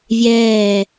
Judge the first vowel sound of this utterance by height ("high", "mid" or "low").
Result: mid